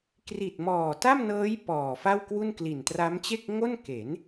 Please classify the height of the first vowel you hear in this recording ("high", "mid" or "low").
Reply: high